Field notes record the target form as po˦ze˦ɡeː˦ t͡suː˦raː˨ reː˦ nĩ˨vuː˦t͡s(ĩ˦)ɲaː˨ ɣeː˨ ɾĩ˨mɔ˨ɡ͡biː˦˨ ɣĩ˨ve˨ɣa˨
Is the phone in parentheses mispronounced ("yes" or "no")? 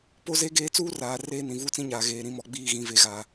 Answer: no